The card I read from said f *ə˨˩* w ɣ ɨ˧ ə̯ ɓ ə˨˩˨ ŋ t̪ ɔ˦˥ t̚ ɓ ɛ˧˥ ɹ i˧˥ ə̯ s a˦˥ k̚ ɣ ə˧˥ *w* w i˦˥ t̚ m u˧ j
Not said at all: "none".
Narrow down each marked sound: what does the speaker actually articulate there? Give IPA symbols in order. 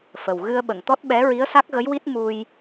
ə˨˩, j

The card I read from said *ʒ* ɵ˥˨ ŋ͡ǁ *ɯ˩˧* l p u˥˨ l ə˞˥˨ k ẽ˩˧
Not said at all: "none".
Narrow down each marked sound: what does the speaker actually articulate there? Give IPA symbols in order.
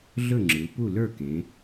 ɮ, ɯ˩˧

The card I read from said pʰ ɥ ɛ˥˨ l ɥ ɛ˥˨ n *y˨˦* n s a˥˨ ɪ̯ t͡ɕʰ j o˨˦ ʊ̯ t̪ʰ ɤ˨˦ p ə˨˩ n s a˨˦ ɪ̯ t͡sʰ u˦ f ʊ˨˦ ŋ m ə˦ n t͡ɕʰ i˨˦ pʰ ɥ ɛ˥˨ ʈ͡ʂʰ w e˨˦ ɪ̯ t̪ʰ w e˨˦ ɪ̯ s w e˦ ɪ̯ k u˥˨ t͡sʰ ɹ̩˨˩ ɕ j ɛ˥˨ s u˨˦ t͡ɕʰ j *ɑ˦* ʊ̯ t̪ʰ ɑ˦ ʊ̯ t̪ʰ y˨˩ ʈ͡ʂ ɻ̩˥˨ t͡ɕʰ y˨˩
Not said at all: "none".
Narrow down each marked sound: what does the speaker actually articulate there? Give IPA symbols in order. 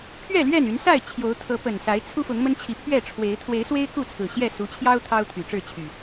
y˨˦, ɑ˦

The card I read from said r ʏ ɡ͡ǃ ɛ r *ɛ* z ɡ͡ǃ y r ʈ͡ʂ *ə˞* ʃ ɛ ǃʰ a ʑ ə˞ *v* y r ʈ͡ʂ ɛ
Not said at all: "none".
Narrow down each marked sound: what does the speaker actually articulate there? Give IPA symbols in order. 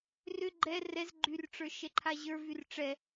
ɛ, ə˞, v

